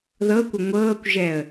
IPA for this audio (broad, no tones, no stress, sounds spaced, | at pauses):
ð ɤ kʷ ə ŋʷ ɤː kʷ ʒ ɛ ə̯